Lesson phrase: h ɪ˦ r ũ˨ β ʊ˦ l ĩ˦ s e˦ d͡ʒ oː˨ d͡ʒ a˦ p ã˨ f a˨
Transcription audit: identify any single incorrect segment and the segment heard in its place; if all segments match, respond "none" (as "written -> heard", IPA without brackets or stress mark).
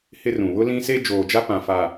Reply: none